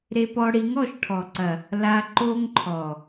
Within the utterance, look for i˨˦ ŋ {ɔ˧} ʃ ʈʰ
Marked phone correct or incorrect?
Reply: incorrect: ɔ˨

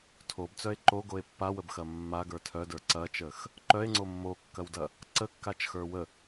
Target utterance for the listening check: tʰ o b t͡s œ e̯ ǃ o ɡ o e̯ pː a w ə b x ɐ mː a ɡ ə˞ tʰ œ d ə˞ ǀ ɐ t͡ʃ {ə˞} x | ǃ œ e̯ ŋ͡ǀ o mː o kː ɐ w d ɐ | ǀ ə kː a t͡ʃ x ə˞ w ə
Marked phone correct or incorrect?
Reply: incorrect: ə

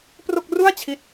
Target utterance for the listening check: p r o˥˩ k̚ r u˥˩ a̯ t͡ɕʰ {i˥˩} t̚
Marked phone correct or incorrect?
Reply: correct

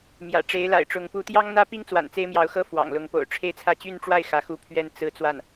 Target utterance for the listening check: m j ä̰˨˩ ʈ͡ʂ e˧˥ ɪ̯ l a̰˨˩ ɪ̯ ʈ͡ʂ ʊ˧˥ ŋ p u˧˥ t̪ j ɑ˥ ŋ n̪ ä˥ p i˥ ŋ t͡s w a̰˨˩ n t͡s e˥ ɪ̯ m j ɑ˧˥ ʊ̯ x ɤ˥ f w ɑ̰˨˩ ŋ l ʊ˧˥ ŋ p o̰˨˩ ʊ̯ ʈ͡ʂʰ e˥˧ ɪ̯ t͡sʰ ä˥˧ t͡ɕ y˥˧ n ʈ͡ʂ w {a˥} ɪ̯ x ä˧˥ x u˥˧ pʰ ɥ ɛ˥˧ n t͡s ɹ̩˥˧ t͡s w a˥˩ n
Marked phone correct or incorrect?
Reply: incorrect: a˥˩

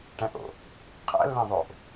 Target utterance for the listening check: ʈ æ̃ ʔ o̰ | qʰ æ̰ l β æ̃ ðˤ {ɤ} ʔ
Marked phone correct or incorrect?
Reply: incorrect: o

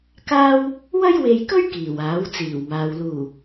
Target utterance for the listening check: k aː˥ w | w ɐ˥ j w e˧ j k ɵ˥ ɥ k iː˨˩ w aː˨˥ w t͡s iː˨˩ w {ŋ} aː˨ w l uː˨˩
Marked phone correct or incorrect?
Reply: incorrect: m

